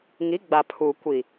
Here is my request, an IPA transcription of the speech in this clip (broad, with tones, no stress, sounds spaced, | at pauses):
ŋ i˨˦ ɡ͡b a˨ pʰ uː˨ kʷ i˨